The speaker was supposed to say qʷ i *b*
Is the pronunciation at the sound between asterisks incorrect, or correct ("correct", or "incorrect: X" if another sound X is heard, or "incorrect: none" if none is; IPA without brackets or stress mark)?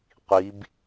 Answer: correct